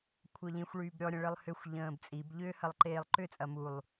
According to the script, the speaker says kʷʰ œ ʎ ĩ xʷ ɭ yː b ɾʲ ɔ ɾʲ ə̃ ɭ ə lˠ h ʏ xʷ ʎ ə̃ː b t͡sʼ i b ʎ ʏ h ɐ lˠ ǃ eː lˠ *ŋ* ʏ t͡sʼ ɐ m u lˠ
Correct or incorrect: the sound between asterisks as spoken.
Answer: incorrect: ǃ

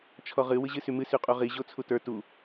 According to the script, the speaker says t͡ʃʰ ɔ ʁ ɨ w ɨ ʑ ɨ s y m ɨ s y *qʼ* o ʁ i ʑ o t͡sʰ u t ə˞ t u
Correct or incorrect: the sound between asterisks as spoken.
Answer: correct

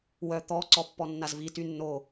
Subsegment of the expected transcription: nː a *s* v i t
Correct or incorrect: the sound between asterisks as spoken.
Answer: incorrect: z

